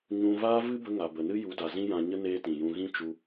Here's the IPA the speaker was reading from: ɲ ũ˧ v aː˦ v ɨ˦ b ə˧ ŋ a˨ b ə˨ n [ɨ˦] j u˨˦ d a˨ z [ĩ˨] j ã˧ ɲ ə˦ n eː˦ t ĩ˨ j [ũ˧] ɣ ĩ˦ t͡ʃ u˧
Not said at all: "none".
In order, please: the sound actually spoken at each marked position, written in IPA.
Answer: ɨ˦, ĩ˦, ũ˧

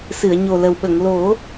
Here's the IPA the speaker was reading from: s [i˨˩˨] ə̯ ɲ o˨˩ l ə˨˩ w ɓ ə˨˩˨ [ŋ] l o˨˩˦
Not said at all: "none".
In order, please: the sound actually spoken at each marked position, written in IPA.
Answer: ɨ˨˩˨, ŋ

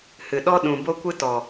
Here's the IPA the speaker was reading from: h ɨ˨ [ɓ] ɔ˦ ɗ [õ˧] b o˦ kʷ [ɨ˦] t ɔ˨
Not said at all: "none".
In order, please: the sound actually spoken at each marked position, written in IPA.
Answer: ɗ, ũ˧, ɨ˦

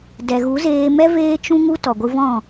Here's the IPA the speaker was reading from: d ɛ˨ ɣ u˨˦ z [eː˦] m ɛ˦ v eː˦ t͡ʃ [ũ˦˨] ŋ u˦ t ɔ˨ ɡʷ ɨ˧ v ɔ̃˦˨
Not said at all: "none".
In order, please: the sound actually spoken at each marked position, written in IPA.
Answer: eː˧, ũ˦

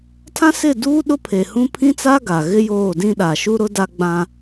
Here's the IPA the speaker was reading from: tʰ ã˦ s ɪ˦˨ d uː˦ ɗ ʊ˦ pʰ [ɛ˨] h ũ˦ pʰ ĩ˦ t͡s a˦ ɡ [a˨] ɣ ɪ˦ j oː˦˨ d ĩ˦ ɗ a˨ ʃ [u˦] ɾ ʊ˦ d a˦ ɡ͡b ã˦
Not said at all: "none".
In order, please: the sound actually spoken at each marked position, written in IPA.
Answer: e˨, a˨, u˦

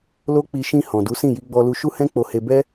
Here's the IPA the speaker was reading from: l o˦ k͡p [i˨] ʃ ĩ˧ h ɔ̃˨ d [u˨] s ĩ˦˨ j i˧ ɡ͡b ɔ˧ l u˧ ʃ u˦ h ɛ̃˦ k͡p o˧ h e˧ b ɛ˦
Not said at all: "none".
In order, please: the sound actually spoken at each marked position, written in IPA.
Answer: i˧, u˨˦

